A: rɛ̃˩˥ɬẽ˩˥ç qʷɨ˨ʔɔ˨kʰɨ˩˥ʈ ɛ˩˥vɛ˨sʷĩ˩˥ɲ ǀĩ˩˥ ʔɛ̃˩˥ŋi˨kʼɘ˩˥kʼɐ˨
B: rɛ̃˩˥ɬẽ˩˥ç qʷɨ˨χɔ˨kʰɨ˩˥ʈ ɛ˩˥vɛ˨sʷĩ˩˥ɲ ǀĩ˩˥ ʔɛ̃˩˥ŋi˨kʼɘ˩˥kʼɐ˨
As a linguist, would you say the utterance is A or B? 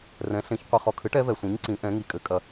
B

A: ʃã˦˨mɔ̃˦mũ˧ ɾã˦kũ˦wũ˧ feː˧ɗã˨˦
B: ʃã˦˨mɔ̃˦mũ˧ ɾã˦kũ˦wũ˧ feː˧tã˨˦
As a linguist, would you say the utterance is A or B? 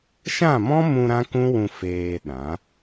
A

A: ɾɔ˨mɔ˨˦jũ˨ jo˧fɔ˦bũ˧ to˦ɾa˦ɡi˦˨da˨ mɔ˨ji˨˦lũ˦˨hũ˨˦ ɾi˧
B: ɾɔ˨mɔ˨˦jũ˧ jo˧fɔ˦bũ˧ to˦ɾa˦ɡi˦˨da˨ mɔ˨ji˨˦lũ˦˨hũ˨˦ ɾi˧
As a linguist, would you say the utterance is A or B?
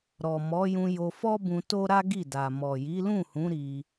B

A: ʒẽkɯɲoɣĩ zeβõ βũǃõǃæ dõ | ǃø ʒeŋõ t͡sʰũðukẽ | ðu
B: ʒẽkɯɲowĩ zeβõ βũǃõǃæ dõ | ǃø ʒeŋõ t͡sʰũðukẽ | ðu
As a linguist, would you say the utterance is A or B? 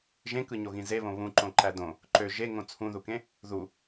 A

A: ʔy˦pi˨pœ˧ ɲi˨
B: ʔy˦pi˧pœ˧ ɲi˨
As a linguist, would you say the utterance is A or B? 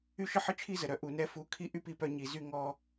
B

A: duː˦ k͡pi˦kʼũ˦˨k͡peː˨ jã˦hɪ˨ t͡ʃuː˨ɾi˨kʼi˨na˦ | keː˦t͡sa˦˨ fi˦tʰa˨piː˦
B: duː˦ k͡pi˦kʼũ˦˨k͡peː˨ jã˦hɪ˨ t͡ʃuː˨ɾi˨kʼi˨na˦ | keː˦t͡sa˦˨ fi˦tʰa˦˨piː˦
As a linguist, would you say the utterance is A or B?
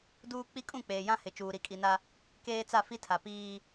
A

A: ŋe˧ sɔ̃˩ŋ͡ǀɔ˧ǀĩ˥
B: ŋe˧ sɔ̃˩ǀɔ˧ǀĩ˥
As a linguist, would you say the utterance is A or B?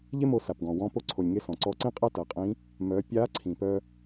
B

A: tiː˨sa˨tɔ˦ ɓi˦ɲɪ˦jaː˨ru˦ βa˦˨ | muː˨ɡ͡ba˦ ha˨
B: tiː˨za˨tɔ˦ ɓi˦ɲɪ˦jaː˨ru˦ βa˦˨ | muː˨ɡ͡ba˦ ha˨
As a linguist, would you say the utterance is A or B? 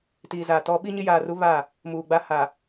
B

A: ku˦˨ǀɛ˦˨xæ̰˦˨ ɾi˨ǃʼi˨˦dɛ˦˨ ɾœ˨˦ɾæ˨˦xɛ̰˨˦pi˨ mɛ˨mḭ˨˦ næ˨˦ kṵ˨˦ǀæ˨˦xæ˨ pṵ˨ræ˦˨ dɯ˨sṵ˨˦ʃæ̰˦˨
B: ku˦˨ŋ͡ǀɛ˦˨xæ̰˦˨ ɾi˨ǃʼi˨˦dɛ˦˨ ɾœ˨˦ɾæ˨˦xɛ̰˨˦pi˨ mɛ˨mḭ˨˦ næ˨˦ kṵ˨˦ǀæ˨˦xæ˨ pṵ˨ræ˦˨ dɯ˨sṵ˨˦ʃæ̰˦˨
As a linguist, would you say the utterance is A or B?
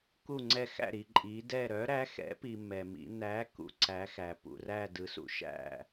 B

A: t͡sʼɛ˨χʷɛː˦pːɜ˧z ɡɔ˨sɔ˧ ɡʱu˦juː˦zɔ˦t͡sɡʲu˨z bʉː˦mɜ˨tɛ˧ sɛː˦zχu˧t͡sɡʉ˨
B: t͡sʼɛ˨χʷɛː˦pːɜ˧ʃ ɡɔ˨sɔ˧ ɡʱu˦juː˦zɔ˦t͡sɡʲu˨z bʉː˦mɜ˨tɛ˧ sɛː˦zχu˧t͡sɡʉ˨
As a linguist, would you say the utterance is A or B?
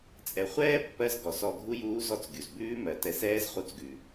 A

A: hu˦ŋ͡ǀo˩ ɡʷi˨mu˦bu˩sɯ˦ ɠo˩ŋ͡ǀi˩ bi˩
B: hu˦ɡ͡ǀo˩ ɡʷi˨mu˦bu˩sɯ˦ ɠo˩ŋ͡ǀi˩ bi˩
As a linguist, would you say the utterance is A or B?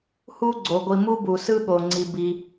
B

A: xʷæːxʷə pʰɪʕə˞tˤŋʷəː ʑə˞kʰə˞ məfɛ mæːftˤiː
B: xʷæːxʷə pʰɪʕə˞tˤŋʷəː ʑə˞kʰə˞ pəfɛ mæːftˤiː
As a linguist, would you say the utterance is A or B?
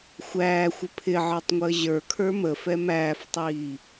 A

